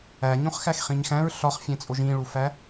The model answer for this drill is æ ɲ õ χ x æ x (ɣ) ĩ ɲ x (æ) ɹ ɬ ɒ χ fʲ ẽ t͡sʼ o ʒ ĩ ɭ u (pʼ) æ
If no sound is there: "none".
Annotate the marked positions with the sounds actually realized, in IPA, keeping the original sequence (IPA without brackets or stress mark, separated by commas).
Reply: χ, æ̃, f